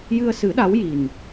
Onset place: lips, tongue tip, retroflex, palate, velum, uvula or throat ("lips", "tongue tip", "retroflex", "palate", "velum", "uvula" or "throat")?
palate